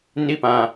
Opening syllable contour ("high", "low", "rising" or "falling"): falling